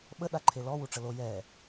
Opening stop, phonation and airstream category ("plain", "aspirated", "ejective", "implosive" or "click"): implosive